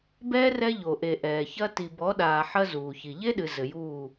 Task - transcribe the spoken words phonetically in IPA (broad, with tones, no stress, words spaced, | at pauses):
bɛː˦ rɛ˦ʎo˨ʔe˨ ʔɛː˨çɐ˦ ti˨bɔ˨˦ɗaː˨ ħɐ˦ zuː˨çi˨ ʎe˦ɗɨ˨ zɘ˨juː˦˨